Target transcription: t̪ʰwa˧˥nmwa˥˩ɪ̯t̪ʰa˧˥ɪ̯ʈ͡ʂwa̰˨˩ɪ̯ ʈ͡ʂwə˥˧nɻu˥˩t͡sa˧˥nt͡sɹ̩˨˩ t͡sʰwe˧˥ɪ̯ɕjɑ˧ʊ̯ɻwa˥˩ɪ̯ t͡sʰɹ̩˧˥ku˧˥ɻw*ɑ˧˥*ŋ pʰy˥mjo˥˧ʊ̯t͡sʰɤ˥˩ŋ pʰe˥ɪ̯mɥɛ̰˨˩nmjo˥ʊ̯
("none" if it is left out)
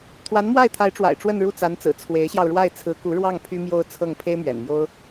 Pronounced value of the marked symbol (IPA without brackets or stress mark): ɑ˥˩